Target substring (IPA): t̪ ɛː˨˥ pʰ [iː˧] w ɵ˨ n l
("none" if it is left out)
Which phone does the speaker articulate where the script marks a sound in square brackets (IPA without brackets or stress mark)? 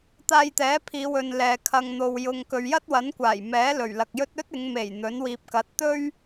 iː˨˧